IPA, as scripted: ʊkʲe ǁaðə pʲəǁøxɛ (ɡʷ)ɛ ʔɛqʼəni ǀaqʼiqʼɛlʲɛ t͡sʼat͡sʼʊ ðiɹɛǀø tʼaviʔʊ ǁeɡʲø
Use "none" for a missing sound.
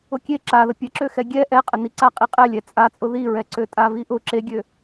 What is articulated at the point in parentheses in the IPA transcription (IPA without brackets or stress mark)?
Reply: ɡʲ